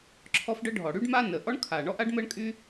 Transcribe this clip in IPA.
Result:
ǁʰ ɔ˥ f ɖ ə˥ ɖʱ ɔ˩ ɽ y˥ ɖ m a˥ n ə˩ ʔ ɔ˥ ɳ kʰ aː˩ ɳ ɔ˥ ʔ a˥ ɖ m əː˥ ɳ kʼ yː˥

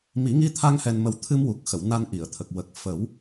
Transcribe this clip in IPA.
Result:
m i˨˩˦ ŋ i˧ t̪ʰ a˧ ŋ h ɛ˧ n m ə˧ w t̪ʰ ɨ˧ m w u˨˩ k̚ x ə˨˩˨ w n a˧ n ʔ i˨˩˨ ə̯ t̪ʰ ə˨˩ k̚ w ə˨˩ k̚ f ə˨˩˦ w

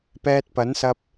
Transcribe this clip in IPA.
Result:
p ɛː˧ t̚ p ɐ˨˥ n s ɐ˧ p̚

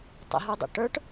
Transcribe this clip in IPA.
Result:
tˤ ə̰ ɦ ə˞ dˤ o̰ ʈ ə˞ ʈ

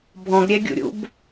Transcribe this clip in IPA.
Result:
bʱ ɔ̃ ɡ ɾʲ ɛ ɡʲ ṵ ɾʲ ṵ b

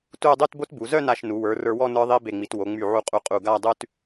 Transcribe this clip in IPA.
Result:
t u˥˧ dˤ y˥˧ t b o˥ t b u˩˧ z œ˥˧ n a˧˩ ʃ n u˩˧ w ə˞˩˧ r ə˞˧ w ɔ˥˧ n ə˞˥ ðˤ i˥ b e˧˩ ŋ͡m i˩˧ t w o˩˧ ŋ͡m y˧˩ ʕ u˧ qʼ u˧˩ qʼ u˧˩ ɡ a˥˧ dˤ ʉ˥ t

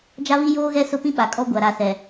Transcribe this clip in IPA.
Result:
d͡ʒ a˦ β i˦ j oː˦ ɣ ɛ˦ s ʊ˦ p ĩ˦ ɓ a˨ kʼ ɔ˦ ɡʷ a˨ ɾ a˨ s ɛ˨

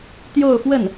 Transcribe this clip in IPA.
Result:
t̪ j o˥˧ ʊ̯ f w ə˥˩ n

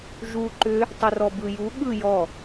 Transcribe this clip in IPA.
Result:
ʒ u ǃ ʏ | tˤ ɪ r ɔ b ɯ j u ɠ ɯ j ɔ

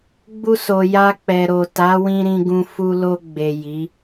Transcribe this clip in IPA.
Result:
ɡ͡b u˧ s o˨ j a˧ k͡p ɛ˨ ɾ o˨ t a˨˦ w ĩ˧ ɾ ĩ˧ ɡ ũ˧ f u˧ l o˧ ɡ͡b e˨ j i˨˦

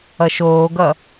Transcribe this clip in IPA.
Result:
ʌ ʃ oː ɡ ʌ

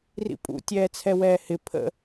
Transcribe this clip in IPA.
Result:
r ḭ pʼ ṵ tʲ ɛː t͡sʰ ɛ w ɛː h ɪ pʰ ə̰

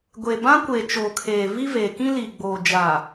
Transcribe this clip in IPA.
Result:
ɡʷ e˨ b ã˦ kʷ e˨ t͡ʃ oː˨ kʰ eː˨ v i˦ v e˨ k ĩ˦ l i˨ ɡ͡b oː˨ d͡ʒ a˨

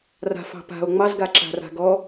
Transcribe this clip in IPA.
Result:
r a̤ f ɑ̤ p a̤ o̯ ŋ͡m ɑ z ɡ a ǁ a̤ r a̤ ɡ ɔ

